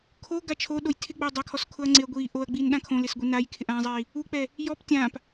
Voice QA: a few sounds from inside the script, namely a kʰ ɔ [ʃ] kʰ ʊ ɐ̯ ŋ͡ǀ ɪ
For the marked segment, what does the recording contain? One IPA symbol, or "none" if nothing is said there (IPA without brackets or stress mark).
s